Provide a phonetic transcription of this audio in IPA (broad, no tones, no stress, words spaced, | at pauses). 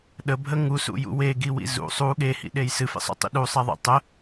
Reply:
ɗəbʱə ŋusṵjṵ weɡiwḭ zṵ sˤu ɠehḭɗej sɨfḛsˤṵtˤḭ ɗusˤɛðˤḛ tˤə